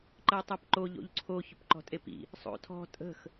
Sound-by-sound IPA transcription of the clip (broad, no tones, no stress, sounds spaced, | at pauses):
ǃ ɜ tˤ ɜ p ǃ o ʎ o̰ ʎ ǀʰ o ç ʊ p ǃ ɔ̤ tʼ e p ḭ | sˤ o̰ tʰ ɔ̤ tʼ ə̤ x